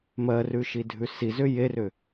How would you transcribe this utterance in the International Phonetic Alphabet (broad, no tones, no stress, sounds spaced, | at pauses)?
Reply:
m ɜ r ʉ ʃ i dʱ ʉ s i z ʏ j e r ʏ